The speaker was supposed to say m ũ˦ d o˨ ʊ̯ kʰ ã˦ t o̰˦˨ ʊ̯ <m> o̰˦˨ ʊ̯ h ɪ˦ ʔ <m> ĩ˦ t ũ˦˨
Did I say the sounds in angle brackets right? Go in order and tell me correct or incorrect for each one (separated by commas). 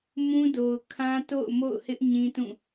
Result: correct, incorrect